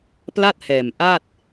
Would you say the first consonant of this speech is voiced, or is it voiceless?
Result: voiceless